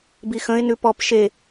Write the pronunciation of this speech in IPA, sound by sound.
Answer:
bixə̃ɪ̯nʉ pɔp ʃe

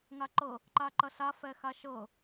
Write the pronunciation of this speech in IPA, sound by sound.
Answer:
ŋaǃɤ | ǃaǃɐɬa fɛxaʃɤ

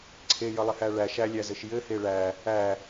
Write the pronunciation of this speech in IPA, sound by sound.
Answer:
ǀʰejʌlˠɪhæ ɭæʃ ælʲæzɘʃ jɘhe ɭæ | æ

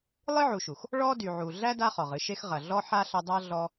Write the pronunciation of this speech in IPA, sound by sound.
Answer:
lˠɨ˥ʕu˨ʃu˩x | ɭɔ˥dy˨ ʕu˨ ɮæ˥da˦ χɔ˨ʁɨ˦ ʃe˦xʁɐ˨ɮɔ˥ ħa˥ɬɐ˦dˤa˥ɮɔ˦

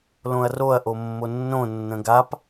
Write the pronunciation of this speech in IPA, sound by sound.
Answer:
lõɐ̯roɐ̯ ʔomːonːõ nːə̃ɡap

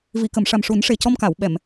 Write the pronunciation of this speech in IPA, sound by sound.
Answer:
vi˨˩˨kə˨˩˨m ʂa˨˩mʂu˨˩˦nʂe˨˩ cɔ˧mka˨˩˨w ɓɛ˨˩˨m

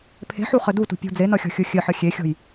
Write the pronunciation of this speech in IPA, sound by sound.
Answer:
pʰe̤ħu χɘdutṳ pʲṳ d͡zenʌxʲɔ̤ xʲʊxʲɘħə xʲexʲɔ̤j

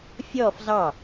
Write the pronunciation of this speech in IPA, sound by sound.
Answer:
fʲɔf zɑ

